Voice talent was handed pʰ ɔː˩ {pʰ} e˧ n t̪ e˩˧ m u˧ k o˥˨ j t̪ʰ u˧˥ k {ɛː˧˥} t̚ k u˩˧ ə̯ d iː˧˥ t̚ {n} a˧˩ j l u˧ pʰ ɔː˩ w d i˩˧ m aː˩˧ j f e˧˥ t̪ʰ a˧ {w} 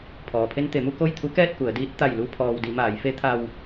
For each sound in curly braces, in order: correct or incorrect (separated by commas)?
correct, incorrect, incorrect, correct